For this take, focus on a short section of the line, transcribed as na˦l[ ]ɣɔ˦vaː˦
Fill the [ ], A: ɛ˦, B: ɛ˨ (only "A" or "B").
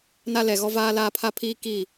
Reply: B